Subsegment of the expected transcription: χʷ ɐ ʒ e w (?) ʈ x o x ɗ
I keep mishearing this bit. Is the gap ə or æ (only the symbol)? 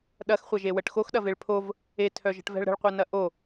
ə